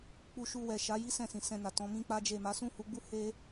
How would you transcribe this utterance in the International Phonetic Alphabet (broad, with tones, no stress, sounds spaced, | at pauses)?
k͡p u˧ ʃ u˧ w ɛ˨ ʃ a˨˦ j i˦ s ɛ̃˦˨ s ĩ˨ s ɛ̃˧ n a˨ t ɔ̃˨˦ m ĩ˦ k͡p a˦ d͡ʒ e˦˨ m a˨˦ s ũ˦˨ h u˧ ɡ͡b u˦ h e˦